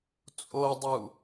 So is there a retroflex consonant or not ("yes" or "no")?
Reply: no